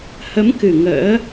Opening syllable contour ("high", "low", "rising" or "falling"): rising